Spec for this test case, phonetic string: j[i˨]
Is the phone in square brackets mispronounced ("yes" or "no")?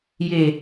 yes